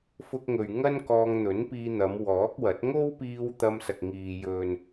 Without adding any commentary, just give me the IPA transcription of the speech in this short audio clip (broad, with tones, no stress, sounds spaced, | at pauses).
f ʊ˧ k̚ ŋ ɵ˨ ɥ ŋ ɐ˥ n k ɔː˧ ŋ n̪ ɵ˨˥ n p iː˧ n̪ ɐ˨˧ m w ɔː˨˥ k̚ w ɐ˨˥ t̚ ŋ o˥ w p iː˧ w t̪ ɐ˧ m s ɐ˨ k̚ ŋ iː˨ j ɵ˨ n